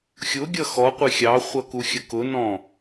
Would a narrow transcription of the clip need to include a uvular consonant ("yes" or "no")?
yes